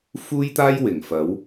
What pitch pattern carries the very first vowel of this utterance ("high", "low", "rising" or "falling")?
high